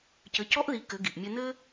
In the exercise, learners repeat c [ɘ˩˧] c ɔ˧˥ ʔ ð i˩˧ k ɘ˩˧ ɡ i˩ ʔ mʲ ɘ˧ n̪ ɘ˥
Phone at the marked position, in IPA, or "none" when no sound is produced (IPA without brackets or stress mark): ɘ˩˧